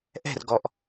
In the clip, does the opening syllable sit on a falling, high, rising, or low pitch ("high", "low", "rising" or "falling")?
falling